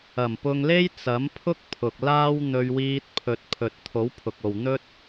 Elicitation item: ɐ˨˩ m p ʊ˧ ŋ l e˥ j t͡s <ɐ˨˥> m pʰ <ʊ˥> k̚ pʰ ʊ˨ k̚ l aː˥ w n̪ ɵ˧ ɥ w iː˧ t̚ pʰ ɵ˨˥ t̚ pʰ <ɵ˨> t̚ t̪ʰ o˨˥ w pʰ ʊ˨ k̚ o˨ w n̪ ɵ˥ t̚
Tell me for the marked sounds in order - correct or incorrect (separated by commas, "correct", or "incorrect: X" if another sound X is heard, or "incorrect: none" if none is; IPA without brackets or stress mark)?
correct, correct, correct